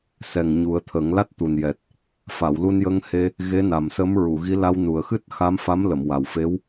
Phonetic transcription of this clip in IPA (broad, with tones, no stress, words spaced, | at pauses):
sɛ˨˩ŋ ɲu˨˩˦ə̯t̪ʰə˨˩˦ŋ la˦˥t̚t̪u˨˩njɛ˨˩t̚ | fa˨˩˨wlu˧njə˧ŋhe˧ | ɣe˧˥na˨˩msə˧˥m ɹu˨˩˨ɣi˧˥ la˧wnu˨˩ə̯ xɨ˦˥t̚xa˧˥mfa˧˥mlə˨˩˨m wa˨˩wfe˧˥w